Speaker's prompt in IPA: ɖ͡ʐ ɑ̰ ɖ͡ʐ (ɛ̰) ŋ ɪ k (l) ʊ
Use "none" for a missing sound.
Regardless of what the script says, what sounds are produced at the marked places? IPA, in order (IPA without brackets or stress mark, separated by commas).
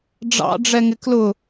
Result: ɛ, l